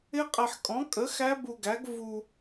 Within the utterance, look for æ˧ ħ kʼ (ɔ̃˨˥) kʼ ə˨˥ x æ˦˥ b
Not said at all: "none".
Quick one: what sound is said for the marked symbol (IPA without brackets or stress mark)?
ɔ̃˨˥